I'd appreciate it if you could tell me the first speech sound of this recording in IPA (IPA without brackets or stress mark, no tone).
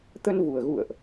t̪